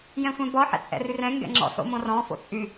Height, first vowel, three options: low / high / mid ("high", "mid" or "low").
mid